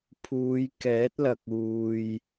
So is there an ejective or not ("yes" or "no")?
no